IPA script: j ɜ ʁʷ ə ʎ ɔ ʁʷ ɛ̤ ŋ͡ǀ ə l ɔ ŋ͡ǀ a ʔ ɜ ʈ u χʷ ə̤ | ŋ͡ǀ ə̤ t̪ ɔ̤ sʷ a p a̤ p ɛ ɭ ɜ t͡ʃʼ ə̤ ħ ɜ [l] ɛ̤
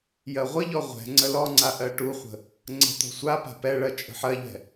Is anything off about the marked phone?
yes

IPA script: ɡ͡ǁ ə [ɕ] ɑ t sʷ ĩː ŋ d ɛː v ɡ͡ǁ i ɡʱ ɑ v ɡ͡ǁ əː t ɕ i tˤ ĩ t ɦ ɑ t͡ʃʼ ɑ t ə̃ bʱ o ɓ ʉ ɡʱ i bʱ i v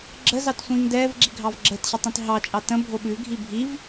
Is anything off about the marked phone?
yes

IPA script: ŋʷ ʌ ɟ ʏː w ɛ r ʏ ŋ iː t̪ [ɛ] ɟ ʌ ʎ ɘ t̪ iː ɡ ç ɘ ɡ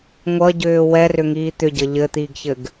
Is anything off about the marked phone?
yes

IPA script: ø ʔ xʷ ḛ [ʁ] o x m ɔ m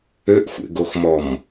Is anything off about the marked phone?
yes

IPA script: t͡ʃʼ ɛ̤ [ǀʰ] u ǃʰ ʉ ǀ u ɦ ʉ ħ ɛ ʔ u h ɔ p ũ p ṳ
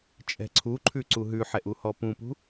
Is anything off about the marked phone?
no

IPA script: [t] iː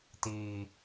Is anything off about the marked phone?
no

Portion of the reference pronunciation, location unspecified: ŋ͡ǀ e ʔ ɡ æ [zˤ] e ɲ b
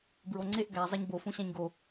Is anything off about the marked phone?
no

